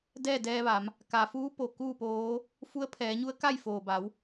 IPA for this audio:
dɛː˥˨dɛː˧ʋa˩˧m | ka˩fuː˧˥ po˩kuː˥˨poː˧˥ | fu˧˥ə̯pʰɛː˩˧ɲu˧˥ə̯ka˥˨j foː˩ba˩˧w

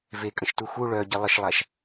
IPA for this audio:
vekʼə̃ʃtu xu ɭœɟi lˠəʃlˠaʃ

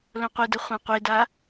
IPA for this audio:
lõqʷidə χʷãqʷida

